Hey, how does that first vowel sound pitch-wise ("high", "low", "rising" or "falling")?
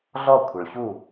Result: falling